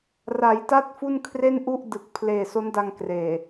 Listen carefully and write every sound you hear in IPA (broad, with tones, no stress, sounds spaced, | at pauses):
r a˩˦ j t a˦˥ t̚ f u˥˩ n kʰ r e˥˩ n ʔ u˥˩ ʔ d ɯ˨˩ k̚ pʰ l eː˨˩ s o˦˥ n d a˧ ŋ k r eː˨˩